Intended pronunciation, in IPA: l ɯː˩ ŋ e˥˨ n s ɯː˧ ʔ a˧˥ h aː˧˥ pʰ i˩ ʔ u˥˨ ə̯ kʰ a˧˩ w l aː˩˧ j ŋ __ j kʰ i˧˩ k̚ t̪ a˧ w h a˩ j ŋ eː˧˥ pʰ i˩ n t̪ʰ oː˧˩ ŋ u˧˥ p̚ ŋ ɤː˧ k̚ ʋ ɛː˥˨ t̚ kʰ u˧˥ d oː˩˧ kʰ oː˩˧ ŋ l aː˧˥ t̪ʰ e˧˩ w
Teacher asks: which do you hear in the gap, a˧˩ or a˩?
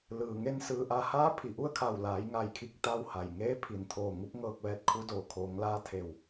a˧˩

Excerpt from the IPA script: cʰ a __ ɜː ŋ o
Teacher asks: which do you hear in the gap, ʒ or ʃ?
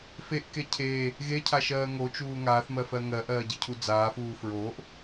ʃ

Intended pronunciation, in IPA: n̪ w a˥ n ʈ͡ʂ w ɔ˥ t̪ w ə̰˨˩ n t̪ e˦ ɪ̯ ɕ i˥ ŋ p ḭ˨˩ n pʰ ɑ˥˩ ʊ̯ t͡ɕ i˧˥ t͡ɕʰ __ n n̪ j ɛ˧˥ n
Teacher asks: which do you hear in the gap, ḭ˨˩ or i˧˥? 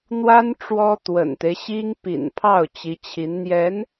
i˧˥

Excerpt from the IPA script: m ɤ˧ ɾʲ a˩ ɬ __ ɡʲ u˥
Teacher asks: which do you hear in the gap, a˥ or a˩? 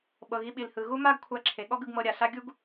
a˥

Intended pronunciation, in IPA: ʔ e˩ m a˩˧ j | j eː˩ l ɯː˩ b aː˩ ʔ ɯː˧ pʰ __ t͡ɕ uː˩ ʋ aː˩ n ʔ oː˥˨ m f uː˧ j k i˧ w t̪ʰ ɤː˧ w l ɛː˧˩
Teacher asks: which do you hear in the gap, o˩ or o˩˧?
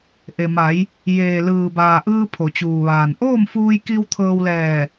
o˩˧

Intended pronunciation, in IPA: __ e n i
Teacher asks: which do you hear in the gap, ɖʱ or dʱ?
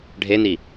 ɖʱ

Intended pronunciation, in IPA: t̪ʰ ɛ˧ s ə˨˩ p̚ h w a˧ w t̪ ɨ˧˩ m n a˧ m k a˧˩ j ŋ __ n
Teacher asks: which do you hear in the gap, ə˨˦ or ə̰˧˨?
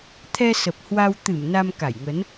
ə˨˦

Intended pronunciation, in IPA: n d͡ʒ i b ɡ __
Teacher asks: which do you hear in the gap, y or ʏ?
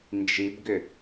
ʏ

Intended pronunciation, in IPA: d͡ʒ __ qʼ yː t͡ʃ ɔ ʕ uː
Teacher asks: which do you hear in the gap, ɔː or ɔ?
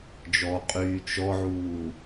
ɔ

